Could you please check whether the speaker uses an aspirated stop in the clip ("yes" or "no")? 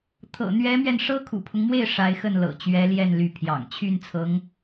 yes